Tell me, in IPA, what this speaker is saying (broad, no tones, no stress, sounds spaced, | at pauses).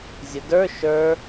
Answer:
zʲ ə d ə˞ ʃ ə˞